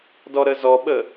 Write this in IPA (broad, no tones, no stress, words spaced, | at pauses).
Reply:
dɔɾəzɔɓə